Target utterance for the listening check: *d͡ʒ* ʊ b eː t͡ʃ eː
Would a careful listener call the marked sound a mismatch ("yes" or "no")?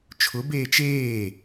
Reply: yes